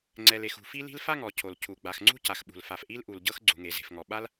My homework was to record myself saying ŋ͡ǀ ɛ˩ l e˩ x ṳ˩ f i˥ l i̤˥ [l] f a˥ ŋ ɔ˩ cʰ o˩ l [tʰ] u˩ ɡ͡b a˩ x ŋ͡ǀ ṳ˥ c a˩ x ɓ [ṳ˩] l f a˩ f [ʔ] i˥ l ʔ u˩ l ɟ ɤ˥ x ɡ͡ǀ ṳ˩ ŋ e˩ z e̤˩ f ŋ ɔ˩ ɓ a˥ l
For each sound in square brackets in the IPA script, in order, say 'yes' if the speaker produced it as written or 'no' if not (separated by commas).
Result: yes, no, yes, yes